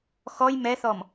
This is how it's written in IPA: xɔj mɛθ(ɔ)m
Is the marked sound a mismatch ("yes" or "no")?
no